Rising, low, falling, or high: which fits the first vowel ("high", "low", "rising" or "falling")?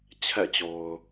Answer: falling